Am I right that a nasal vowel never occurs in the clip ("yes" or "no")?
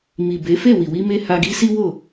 yes